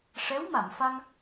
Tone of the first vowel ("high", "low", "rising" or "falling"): rising